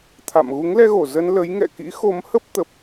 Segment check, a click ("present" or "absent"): absent